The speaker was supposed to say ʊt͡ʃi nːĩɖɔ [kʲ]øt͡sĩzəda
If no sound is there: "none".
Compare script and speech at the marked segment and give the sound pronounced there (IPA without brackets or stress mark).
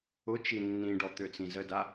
t̪